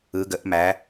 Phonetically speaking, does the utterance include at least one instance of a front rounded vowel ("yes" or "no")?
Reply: no